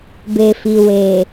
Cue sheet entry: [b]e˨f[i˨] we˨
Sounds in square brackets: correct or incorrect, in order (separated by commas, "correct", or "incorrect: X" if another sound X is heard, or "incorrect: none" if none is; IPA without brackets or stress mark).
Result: correct, correct